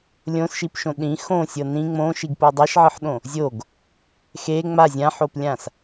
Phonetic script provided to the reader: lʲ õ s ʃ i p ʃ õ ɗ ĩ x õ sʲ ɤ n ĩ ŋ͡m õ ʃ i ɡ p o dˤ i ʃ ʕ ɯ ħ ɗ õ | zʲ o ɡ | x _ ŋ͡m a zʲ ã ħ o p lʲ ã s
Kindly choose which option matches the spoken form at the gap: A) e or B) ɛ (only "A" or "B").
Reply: A